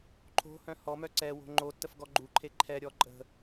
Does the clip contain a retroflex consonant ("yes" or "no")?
no